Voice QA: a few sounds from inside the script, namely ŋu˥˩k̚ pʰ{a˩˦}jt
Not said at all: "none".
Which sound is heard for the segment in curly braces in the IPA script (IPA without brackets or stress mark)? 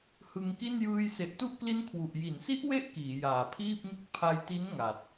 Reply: a˧